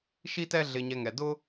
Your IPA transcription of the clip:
ʃi˥tɛ˥ ɮɪ˧ɲɛ˧ ŋɛ˩dʊ˥

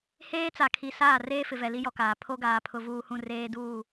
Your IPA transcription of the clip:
heː˦t͡sa˨kʰi˨saː˦˨ reː˦fɪ˨vɛ˨ li˦jɔ˨kaː˨ pʰo˦ɡaː˨pʰʊ˨ vuː˨hũ˨ reː˦duː˦˨

